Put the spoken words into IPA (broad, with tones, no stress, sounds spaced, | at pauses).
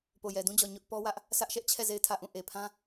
p o˨ j ɛ˨ d ũ˦ d͡ʑ ɔ˨ ɲ ʊ˦ ʔ p ɔ˦ w ä˦ ʔ | sʰ ä˦ ʔ ʃ ɛ˦ ʔ t͡ɕʰ ɛ˦˨ z e˦˨ ɪ̯ tʰ ä˦˨ ʔ ũ˦˨ ʔ e˨ pʰ ã˦